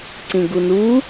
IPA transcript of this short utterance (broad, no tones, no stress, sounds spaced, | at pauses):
ǀ ĩ ɡ u n u